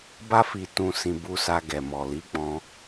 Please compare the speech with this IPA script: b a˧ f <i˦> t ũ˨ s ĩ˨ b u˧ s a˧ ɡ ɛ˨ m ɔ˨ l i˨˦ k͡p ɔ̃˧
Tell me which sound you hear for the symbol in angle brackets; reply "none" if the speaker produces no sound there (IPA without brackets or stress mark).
i˨